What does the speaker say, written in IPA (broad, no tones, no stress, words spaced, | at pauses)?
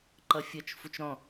ǃʌfʲʌt͡ʃ fut͡ʃɾɔ̃